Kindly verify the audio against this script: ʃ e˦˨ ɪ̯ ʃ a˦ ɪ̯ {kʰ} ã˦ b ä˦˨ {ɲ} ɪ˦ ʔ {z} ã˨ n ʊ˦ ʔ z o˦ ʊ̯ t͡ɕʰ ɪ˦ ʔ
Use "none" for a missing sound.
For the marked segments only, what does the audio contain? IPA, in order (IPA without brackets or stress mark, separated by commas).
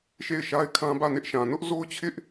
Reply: kʰ, n, ʃ